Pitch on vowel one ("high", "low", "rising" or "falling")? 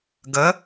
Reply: rising